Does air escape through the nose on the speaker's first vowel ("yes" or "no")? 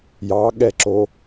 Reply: no